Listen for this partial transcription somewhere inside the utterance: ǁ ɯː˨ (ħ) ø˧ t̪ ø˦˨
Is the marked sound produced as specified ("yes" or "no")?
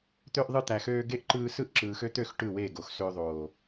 no